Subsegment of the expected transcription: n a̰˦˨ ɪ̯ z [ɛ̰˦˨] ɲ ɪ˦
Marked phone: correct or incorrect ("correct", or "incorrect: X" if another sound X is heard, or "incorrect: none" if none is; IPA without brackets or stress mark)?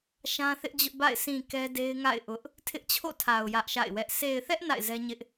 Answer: incorrect: ɛ˦